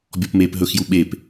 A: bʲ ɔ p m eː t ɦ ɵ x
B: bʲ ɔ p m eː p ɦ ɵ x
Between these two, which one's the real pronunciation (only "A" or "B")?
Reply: B